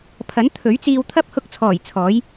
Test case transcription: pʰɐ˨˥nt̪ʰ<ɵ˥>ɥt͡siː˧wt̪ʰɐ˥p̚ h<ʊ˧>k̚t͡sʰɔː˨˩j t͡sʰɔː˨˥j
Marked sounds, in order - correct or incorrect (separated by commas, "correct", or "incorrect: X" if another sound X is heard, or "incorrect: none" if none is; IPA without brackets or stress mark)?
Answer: incorrect: ɵ˨˥, correct